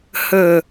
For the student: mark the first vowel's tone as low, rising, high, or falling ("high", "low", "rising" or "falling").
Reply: falling